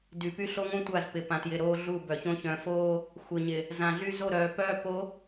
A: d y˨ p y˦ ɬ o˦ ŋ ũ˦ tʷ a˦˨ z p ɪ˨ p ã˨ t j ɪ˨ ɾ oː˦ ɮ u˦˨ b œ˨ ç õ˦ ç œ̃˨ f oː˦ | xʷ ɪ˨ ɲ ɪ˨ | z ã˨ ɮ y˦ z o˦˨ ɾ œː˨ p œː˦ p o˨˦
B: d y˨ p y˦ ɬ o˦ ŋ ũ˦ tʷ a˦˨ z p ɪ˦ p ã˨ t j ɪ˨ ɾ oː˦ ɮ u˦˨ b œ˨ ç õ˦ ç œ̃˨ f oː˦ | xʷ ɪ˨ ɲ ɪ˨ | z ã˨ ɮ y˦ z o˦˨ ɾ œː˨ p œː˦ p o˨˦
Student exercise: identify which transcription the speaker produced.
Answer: A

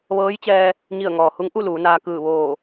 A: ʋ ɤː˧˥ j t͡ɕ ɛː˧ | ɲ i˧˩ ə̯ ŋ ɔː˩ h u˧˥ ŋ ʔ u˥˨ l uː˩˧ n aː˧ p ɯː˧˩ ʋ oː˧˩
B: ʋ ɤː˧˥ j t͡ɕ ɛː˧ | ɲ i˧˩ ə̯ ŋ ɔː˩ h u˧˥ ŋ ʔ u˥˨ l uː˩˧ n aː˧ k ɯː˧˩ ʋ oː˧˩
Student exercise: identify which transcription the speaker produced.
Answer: B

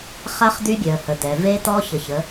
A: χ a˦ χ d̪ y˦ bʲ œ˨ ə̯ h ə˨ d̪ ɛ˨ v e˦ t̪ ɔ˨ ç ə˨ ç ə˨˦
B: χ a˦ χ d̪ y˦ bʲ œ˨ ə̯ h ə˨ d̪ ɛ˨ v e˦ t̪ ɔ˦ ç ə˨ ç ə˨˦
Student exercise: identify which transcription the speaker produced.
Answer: B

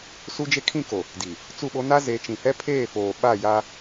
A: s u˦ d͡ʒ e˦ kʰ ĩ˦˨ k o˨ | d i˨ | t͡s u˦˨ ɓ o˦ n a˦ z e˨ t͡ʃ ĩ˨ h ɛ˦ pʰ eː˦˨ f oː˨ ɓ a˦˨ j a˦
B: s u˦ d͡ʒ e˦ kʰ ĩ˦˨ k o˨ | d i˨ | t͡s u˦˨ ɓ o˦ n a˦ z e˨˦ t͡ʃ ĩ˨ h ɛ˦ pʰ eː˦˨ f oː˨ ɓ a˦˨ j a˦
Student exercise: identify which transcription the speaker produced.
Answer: B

